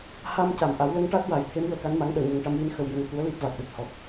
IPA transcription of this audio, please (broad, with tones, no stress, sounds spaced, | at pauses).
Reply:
h a˧ m c a˨˩˨ m ʔ a˨˩˦ w l ə˧ ŋ ʈ a˦˥ t̚ w a˨˩˦ j t̪ʰ e˧˥ m w əː˨˩˦ k a˧˥ n m a˧˥ ŋ ɗ əː˨˩˨ ɲ ə˨˩ ŋ ʈ a˧ m w i˧˥ n x ə˧ w j ə˧ ŋ k u˧˥ ə̯ l i˦˥ p̚ v a˨˩ k̚ ɗ ə˨˩ k̚ h ɔ˨˩ t̚